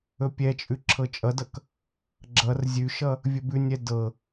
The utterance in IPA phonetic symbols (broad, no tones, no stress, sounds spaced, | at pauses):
ɵ pʲ ɛ t͡ʃʼ ʉ ǁʰ ɤ t͡ʃʼ ʌ d ʌ k | ɡ͡ǁ ʌ r zʲ ʉ ʃ ʌ | vʲ ɵ b ʉ nʲ ɛ d ɤ